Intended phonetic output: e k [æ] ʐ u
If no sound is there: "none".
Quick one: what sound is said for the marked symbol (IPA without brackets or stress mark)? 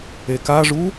a